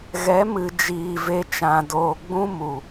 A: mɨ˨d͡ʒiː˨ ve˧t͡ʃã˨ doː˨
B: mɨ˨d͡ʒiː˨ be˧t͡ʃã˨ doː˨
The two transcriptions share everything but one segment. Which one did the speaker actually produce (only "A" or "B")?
A